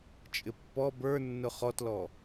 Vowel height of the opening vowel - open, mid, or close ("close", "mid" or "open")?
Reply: close